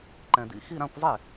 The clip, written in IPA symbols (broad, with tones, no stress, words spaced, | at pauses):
ǃɛ̃˨dḭ˧˥˧ xi˥˧ɾã˥˧kʷzˤe˥˩